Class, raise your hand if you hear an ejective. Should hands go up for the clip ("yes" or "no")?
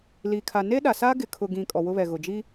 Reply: yes